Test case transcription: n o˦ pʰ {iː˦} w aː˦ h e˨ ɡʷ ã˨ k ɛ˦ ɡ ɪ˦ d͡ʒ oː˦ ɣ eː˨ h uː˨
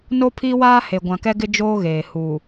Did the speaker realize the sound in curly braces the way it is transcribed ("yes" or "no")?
yes